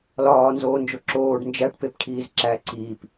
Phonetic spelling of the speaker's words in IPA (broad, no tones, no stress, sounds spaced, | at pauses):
l ɒː n z oː n d͡ʒ o ǁ oː ɖ n d͡ʒ æ ʈ p e p ʈʰ iː z ǁ æ ǀ iː p